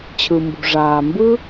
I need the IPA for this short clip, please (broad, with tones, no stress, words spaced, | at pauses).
t͡ɕʰɯ˩mbṳ˩ʐaː˩ mbɯ˥